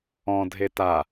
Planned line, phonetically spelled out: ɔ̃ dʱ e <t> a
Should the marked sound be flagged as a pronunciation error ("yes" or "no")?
no